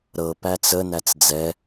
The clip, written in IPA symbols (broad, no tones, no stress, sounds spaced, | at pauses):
ɾ ɤ p æ t͡s ə n æ t͡s d͡z ɛ